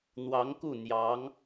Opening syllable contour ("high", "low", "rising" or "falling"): rising